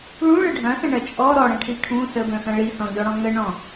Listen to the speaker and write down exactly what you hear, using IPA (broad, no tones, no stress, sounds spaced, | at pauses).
ɭ ũ ɭ ə ɖʱ ɐ̃ s ɐ̃ ɳ ɐ t͡ʃʼ ɔ ɾ ɔ ɽ ɐ̃ ʈʰ i ʈʰ ũ s ə b œ̃ x ɐ̃ ɭ i s ɔ̃ ʎ ɔ ɽ ɔ̃ ŋ ə ɳ ɔ̃